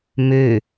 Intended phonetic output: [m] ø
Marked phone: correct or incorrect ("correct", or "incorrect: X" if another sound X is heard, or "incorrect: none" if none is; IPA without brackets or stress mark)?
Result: correct